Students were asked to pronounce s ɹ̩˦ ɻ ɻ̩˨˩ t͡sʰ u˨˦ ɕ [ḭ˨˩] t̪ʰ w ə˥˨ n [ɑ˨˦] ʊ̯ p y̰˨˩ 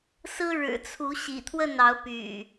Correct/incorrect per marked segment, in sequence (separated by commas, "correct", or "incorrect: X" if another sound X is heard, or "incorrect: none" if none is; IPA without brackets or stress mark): correct, correct